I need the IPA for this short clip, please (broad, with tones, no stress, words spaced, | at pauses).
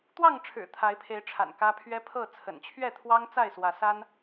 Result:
t̪wɑ˥˨ŋʈ͡ʂʰɻ̩˨˩ t̪ʰa˨˦ɪ̯pʰe˨˦ɪ̯ʈ͡ʂʰa̰˨˩n kä˦ pʰɥɛ˦pʰɤ˥˨ t͡sʰə̰˨˩nt͡ɕʰɥɛ˥˨t̪ʰwɑ˦ŋ t͡sa˥˨ɪ̯swä˨˦sa˦n